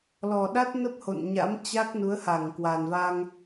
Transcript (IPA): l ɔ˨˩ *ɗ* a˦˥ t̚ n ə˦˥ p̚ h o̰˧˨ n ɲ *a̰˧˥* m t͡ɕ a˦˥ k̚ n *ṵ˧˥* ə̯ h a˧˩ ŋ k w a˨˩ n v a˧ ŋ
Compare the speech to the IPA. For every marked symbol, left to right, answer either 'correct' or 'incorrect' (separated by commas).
correct, correct, incorrect